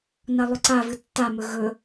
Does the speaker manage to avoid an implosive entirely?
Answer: yes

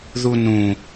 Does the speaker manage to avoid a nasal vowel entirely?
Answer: no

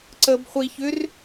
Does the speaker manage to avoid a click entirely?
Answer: no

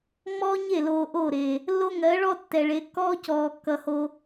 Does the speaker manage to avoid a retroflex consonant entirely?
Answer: no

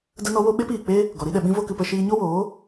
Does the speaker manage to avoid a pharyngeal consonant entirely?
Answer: yes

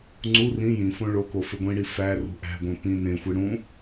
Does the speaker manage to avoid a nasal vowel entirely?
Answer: no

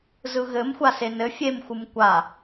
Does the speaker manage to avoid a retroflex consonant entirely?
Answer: yes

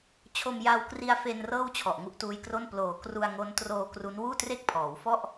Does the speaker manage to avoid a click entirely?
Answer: yes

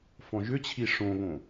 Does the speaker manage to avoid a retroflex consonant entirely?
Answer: no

